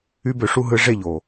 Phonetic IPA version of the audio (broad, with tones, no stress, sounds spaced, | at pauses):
y˧ b ø˨ ʂ u˧ ɦ ɯ˧ ʐ e˦˨ ʎ o˨